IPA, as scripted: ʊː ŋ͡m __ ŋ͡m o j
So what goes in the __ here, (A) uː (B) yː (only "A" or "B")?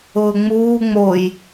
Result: A